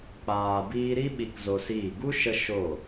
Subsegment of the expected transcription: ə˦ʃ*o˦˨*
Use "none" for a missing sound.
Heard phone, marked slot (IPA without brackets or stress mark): o˦˨